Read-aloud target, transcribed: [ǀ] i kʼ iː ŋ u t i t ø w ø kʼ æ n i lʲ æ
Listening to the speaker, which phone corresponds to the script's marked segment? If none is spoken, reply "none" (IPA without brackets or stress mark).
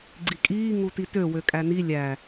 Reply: ɡ͡ǀ